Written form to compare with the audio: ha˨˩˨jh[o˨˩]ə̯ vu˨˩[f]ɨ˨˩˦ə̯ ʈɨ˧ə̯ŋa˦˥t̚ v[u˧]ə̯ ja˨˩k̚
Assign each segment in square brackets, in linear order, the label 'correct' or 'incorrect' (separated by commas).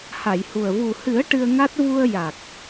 incorrect, incorrect, correct